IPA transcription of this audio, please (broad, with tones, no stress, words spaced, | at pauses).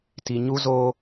ti˨ɲu˦zoː˦